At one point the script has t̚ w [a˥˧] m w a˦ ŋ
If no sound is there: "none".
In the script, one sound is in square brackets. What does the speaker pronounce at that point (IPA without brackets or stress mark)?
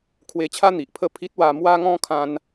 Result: a˧